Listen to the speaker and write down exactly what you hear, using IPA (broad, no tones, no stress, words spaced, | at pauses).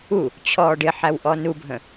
u | t͡ɕʰɔːɖɪħæw ʔɔnubʱə̃